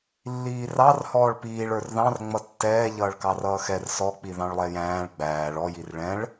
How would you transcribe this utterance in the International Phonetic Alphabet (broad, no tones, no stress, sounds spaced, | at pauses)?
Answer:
lː iː r ɑ r h ɔː ɭ p iː ɭ ə˞ r ð ɑ̃ r ŋ͡m ʌ tː ɛː ʎ ʌː ɭ k ɑ r ʌː x ɛ r s ɔ k͡p i ð ɑ̃ ɭ lˠ ɛ j æ̃ː ɭ ɡ͡b æː ɭ ɔ j i r ɭ ɛ̃ ɭ